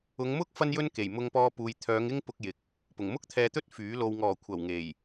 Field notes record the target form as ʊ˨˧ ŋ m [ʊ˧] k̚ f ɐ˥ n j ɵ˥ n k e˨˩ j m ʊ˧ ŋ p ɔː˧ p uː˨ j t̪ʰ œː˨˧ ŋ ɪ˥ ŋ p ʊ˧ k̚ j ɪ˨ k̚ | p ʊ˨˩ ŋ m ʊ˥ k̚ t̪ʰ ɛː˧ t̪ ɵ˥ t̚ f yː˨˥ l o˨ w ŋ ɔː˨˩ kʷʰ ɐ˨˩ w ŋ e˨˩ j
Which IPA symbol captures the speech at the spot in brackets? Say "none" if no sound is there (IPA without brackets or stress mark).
ʊ˥